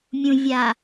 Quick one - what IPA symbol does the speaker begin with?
mʲ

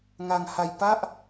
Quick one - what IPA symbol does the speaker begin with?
ŋ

